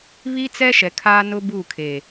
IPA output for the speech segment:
β i˦ t͡s ɛ˦ ʃ ɛ˨ kʰ a˦ n ʊ˦ b u˦˨ kʰ e˨

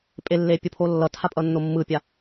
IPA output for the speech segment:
pʼ e lː e pʲ o pʰ o lː ʌ tʰ a pʼ ʌ nː o mː ɯ pʲ a

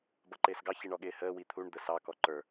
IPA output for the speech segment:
b ʌ ǃ ɪː s ɡ ɑ ç i ɳ ɔ ɠ ɪː h əː w i t̪ʰ u ɳ d̪ ə s ɑ k ɔ ǃ ə˞

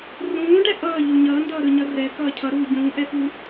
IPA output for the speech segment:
r ũː ɖ ɛ ʔ ʌː ʎ u ɲ ʌː n d ʌː ɾ ɯ ɲ ʌ r ɛ k ʌː cʰ ʌ ɾ uː ɟ ũː ʔ ɛ f u

